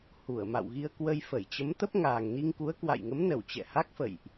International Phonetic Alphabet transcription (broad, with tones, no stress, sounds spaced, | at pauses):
h u˧˩ ə̯ m a̰˧˨ w ɣ i˧ ə̯ k w ə˧ j f ə˧˩ j t͡ɕ ə˨˦ m t̪ ə˦˥ p̚ ŋ aː˨˩ ŋ n i˧ ŋ k u˨˦ ə̯ k w a̰˧˨ j ŋ ə˨˦ m n ə˧˩ w t͡ɕ ɛ̰˧˨ h a˦˥ k̚ f ə̰˧˨ j ʔ